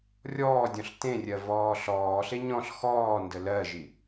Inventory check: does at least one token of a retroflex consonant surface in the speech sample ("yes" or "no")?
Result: no